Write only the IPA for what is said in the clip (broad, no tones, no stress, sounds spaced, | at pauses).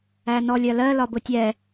æ n ɔ lʲ ɜ l ɜ l ɒ b ʊ tʲ ɛ